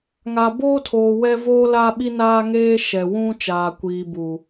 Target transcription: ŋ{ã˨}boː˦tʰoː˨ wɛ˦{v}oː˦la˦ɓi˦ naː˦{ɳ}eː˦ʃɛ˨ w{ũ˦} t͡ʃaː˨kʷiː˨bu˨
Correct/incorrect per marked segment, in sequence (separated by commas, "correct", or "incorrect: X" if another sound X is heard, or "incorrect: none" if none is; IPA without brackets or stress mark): incorrect: a˨, correct, incorrect: ŋ, correct